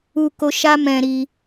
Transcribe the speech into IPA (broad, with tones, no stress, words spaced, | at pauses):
u˧ko˧ ʃa˦ mɛ̃˧ɾi˧